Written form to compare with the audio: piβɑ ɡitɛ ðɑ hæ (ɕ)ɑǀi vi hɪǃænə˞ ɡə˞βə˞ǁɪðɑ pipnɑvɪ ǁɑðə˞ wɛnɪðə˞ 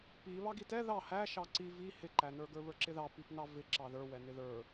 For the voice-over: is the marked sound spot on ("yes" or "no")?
no